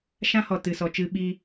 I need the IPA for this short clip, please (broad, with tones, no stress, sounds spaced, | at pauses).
ʃ ã˦ h ɔ˨ t ɨ˨ s ɔ˨ t͡ʃ ɨ˧ ɓ i˧